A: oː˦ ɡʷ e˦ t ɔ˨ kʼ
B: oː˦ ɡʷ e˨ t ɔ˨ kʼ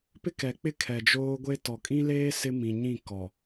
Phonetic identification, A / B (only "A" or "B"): A